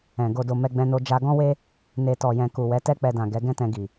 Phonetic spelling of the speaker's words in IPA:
ɛ̃˨ ɡ o˨ d o˨ m ɛ˧ ɡ͡b ɛ̃˧ n o˧ d͡ʒ a˧ ɡ ɔ̃˦ w e˦ | n e˨ t ɔ˨ j ɛ̃˨ k u˨ w ɛ˨˦ t ɛ˦ k͡p ɛ˧ d ã˨ ɡ ɛ˨˦ ɡ ɛ̃˦ t ɛ̃˧ ɡ i˨

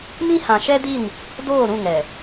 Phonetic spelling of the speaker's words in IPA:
m ĩ˦ h ã˨ ʃ ɛ˦ d i˦˨ n | d oː˦˨ ɾ ũ˦˨ ŋ ɛ˨

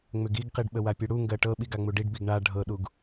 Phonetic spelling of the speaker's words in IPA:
ŋ͡m ʏ ɡ i ɡ q i ɖ ɓ ə w a pʲ u ɽ u ŋ ɡ ɜ ʈ ɤ ɓ i ɡ a ŋ͡m u ɖ i ɖ b i ɡ ɳ a ɖʱ ɤ ɗ u ɡ

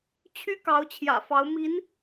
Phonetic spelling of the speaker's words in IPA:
t͡ɕʰ y˥ k ɑ˧˥ ʊ̯ t͡ɕʰ j ä̰˨˩ f ɑ˧˥ ʊ̯ m i˧˥ n

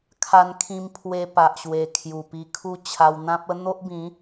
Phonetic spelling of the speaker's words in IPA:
kʰ a˧ n kʰ ĩ˧ m pʰ w e˧ p a˨ ʔ ɕ w e˨˩ kʰ j u˨˩ p i˧ kʰ u˦ t͡ɕʰ a˧ w n̪ ã˦ p̚ ə˦ n̪ o˦ ʔ b ĩ˨˦

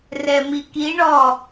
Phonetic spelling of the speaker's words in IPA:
r ɛ m i k i ɳ ɔ

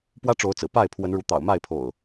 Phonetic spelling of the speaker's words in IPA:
p w ä˦ ʈ͡ʂ o˨˦ ʊ̯ t͡s ɹ̩˨˩ p a˥˨ ɪ̯ pʰ w ə˨˦ n ɻ u˨˦ t̪ ɑ̰˨˩ ʊ̯ m a˥˨ ɪ̯ pʰ o̰˨˩ ʊ̯

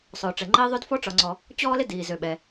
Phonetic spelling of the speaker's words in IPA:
sˤ ʊː˩ ʈ͡ʂ ɛ˩ ŋ͡ǃ iː˦ ðˤ ø˥ d f ɔ˥ ʈ͡ʂ ɒ˨ ŋ͡ǀ ɔ˨ | t͡ɕ ɔː˦ l ɪ˦ d iː˩ z ø˩ ɓ ɛ˩

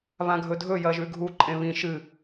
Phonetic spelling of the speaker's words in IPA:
β ã ɡʱ ɵ dʱ ɵ j ɐ ʒ ʉ ɡʱ u ǃʼ ẽ β ĩ ʃ ɨ

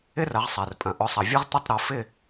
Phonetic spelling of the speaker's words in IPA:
ɪ˦˥ r ɐ˩˧ ʁ sˤ ɛ˩ r pʼ ɐ̃˩ ʔ ʊ˩˧ sˤ ɐ˩ vʲ ɐ˦˥ ʁ t̪ ʊ˥˨ tˤ ɾ o˩˧ f ɪ˥˨

